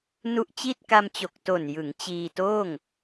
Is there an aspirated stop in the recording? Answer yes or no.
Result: no